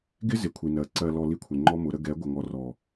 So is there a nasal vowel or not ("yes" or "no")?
no